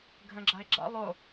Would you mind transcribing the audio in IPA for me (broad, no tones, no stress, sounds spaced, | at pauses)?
ɡʱ ə̃ ɡ͡ǁ a ɪ̯ ɡ͡ǁ a̰ lˠ o